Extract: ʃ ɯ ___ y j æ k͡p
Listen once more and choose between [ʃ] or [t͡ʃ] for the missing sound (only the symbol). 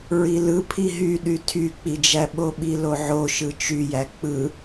t͡ʃ